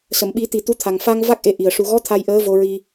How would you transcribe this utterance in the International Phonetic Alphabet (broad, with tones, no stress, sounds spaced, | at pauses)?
s ə˨˩˨ m ɓ i˨˩˦ t̪ i˨˩ t̪ u˧˥ t̪ʰ a˨˩ ŋ f a˧ ŋ v a˦˥ k̚ ʔ e˧ ʔ i˨˩ ə̯ ʂ u˨˩ ɣ ɔ˧˥ t̪ʰ a˧ j ʔ əː˧˥ v o˧ ɹ i˧